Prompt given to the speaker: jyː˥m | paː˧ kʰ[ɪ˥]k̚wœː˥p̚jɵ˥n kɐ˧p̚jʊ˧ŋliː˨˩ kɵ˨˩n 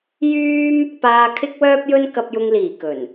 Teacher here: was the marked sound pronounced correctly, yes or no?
yes